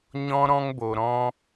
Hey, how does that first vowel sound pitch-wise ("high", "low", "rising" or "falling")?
high